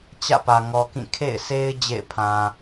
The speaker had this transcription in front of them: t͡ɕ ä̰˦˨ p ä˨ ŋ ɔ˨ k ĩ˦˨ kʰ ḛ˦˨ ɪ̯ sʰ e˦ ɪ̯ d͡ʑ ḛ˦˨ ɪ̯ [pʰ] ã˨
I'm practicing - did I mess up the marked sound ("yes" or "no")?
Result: no